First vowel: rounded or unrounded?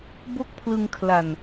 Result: rounded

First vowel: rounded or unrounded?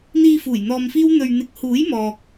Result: unrounded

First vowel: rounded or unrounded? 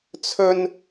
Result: rounded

